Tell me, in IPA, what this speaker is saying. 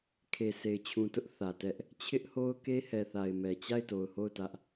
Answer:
kʰ e˨ s e˨ ɪ̯ t͡ɕʰ ũ˨ t ʊ˦ ʔ θ ä˨ t ɛ˦ ʔ | t͡ɕʰ ɪ˦ ʔ h o˦ ʊ̯ k e˦ h ɛ˨ θ a˨ ɪ̯ m ɛ˨ t͡ɕ a˦˨ ɪ̯ t o˨ ʊ̯ h o˦˨ ʊ̯ t ä˦ ʔ

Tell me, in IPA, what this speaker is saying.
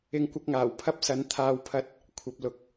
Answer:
ɪ˧ ŋ kʷ ɐ˧ k̚ ŋ aː˨˩ w pʰ ɐ˥ p̚ s ɐ˨˥ n t̪ʰ aː˨ w pʰ ɐ˨˥ t̚ | kʷʰ ɐ˧ p̚ l ʊ˨ k̚

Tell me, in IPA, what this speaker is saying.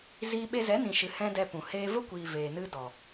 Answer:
z iː˦ ɓ e˦ z ɛ˨˦ n ĩ˨ ʃ ɨ˨ h ɛ̃˦ d ɛ˧ p ũ˨ h eː˧ v ə˦ kʷ iː˨ v eː˨ n ɨ˧ d ɔ˨

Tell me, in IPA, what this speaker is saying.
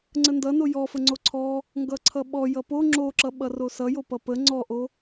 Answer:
ŋ͡ǀ ə n d ʌ n o j ɔ f ə ŋ͡ǀ o ǀʰ ɔ | ŋ ɡ ʌ ǀʰ ʌ ɓ ɔ j ʌ p o ŋ͡ǁ o ǁ ʌ ɓ ʌ r o s ʌ j o p ʌ p ə ŋ͡ǀ ɔ ʔ o

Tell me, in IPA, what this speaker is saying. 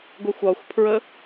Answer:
ɡʷ ɛ xʷ ɒ xʷ pʰ ɹ ə

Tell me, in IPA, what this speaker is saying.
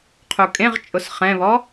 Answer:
qʰ u kʼ ẽ ʁ t͡ʃʼ ʊ s χ ɛ̃ β ɔ

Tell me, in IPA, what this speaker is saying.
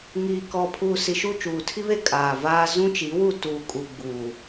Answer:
ŋ iː˨ k ɔ˨ pʰ uː˨ s i˨ ʃ u˦˨ t͡ʃ uː˨ tʰ i˦ β e˦ kʼ aː˨ v aː˦ z ũ˦ t͡ʃ i˨˦ w u˦˨ t uː˨ kʼ u˨ ɡ͡b uː˨

